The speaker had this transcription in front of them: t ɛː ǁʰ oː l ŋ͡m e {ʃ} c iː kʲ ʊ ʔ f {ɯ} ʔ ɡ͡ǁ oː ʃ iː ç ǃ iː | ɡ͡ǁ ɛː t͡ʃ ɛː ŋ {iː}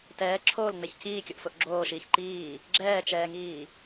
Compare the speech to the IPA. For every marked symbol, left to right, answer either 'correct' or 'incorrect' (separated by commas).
incorrect, incorrect, correct